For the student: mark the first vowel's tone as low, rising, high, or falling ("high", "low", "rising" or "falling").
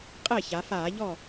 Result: falling